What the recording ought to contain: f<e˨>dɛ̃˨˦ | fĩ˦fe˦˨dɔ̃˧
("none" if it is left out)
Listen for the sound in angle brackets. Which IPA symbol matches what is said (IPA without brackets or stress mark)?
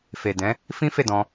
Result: e˨